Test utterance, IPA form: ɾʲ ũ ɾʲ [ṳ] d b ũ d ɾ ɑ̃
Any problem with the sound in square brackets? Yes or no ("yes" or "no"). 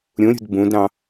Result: no